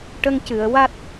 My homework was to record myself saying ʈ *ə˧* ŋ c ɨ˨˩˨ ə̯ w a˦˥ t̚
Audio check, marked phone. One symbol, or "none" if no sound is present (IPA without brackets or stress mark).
ə˧